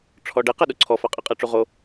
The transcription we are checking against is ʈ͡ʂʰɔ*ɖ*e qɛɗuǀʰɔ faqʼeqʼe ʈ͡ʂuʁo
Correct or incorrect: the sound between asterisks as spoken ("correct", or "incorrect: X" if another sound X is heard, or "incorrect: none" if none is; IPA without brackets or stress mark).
correct